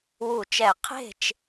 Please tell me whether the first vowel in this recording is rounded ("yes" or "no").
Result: yes